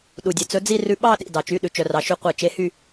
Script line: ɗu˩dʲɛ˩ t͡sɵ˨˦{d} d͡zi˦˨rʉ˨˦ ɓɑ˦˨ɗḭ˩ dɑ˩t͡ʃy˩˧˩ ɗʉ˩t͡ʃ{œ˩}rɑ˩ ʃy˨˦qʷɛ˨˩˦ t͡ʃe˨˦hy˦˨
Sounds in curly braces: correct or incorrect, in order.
incorrect: none, correct

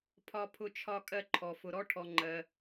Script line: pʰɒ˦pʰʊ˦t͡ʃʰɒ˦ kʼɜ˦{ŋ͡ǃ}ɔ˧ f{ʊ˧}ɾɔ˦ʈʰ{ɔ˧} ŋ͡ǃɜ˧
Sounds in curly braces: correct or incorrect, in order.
incorrect: ǃʰ, correct, correct

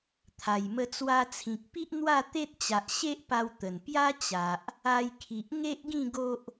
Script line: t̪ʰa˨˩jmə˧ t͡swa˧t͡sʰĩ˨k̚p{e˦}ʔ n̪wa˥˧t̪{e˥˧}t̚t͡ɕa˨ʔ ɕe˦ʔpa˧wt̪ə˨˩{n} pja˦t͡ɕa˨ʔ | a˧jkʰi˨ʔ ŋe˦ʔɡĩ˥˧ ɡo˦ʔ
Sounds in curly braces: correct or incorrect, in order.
incorrect: i˦, incorrect: e˦, correct

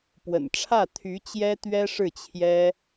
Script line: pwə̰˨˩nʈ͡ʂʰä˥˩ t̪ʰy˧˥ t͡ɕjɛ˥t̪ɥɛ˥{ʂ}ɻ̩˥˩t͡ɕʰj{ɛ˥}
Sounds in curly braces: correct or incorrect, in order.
correct, correct

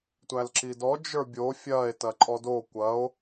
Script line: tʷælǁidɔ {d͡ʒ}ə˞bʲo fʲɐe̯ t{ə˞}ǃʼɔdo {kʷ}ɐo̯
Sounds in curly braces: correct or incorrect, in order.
correct, incorrect: ɐ, correct

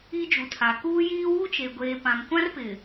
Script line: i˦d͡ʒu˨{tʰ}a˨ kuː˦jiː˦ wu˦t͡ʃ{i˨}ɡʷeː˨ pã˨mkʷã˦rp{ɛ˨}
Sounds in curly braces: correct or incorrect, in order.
correct, incorrect: e˨, incorrect: ɪ˨

